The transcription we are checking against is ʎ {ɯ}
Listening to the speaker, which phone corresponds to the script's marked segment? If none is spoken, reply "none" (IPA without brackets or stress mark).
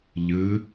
ɯ